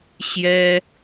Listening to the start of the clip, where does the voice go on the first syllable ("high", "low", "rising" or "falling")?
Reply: high